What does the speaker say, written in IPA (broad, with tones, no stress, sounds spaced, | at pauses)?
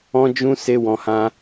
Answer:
ɔ̃˦ d͡ʒ ũ˦ s e˦ w ɔ̃˧ h ã˦